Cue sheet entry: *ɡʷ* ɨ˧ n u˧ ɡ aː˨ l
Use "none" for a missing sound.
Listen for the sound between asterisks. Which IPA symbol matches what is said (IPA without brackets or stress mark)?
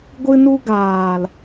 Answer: ɡʷ